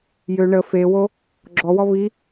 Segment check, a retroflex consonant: present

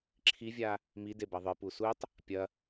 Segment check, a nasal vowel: absent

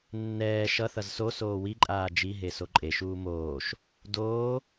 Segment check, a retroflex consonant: absent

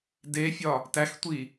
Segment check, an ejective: absent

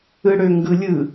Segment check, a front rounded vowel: present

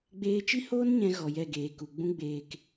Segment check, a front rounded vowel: absent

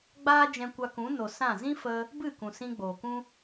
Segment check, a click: absent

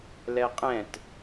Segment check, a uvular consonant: present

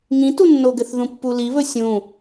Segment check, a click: absent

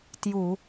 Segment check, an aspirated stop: absent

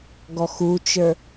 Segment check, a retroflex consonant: absent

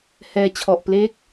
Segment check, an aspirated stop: present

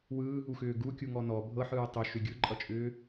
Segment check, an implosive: absent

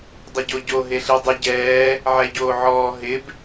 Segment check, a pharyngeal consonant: present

